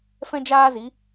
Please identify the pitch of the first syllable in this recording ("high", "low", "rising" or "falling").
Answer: high